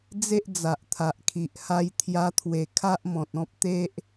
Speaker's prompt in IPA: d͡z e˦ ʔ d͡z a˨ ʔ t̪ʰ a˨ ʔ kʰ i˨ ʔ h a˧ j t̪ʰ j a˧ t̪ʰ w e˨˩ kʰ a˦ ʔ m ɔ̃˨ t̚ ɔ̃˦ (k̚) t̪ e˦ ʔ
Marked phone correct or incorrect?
incorrect